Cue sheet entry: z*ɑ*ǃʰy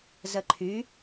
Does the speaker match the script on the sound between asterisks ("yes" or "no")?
no